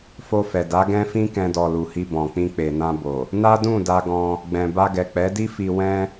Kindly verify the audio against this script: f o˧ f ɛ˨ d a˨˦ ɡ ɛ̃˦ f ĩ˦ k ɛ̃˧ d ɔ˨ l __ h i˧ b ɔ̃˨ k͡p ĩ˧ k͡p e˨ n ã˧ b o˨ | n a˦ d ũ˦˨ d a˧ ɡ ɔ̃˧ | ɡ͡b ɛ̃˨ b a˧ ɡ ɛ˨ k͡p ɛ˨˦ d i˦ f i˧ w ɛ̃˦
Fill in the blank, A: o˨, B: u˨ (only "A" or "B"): B